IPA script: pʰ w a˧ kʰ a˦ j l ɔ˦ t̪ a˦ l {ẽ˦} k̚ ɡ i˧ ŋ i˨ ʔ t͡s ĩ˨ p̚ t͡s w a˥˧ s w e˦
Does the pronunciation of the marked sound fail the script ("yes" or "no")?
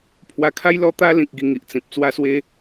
yes